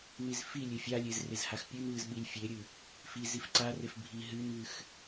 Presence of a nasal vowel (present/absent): absent